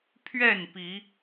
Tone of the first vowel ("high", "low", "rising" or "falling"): falling